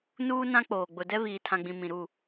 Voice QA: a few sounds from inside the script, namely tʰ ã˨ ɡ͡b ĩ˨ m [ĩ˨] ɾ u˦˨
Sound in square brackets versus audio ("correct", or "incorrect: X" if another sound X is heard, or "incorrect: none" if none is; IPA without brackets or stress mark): correct